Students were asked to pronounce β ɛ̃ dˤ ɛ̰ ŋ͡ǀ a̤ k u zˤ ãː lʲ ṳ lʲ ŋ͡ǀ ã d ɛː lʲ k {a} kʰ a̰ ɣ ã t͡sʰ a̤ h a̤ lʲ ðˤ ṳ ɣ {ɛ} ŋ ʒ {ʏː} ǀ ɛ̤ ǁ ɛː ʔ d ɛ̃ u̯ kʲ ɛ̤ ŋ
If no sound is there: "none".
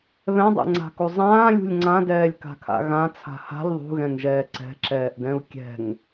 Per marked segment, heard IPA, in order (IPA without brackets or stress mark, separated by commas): a̤, ɛ̃, ɛː